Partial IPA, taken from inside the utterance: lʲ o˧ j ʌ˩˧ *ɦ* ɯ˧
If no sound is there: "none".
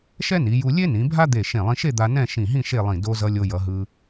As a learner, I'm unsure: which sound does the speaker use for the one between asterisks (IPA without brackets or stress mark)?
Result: ɦ